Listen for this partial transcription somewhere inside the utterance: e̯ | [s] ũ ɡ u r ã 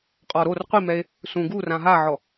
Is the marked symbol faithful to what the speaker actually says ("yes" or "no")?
yes